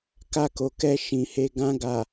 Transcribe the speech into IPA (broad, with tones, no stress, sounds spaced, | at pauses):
k a˧ k o˨ k ɛ˧ ʃ ĩ˨ h e˧ ɡ ã˧ ɡ a˨